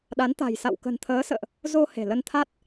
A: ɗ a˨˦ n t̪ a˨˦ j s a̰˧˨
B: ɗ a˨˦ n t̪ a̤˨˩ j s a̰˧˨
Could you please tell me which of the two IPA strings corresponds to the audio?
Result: B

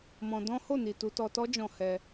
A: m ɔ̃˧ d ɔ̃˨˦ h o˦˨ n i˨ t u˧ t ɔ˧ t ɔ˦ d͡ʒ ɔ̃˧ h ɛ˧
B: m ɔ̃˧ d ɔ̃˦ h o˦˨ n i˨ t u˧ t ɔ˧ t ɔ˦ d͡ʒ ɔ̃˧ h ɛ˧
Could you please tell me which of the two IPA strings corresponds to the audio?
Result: B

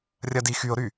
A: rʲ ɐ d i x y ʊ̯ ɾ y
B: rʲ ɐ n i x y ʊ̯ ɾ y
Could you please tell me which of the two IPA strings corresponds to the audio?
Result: A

